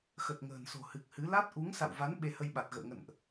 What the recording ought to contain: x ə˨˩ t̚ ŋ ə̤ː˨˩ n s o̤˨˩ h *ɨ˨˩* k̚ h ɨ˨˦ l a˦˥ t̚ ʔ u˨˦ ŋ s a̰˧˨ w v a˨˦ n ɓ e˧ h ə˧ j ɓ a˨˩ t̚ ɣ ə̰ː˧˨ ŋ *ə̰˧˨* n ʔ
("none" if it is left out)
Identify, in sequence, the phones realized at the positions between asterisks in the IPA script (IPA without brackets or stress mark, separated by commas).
ɨ˨˩, ə̰˧˨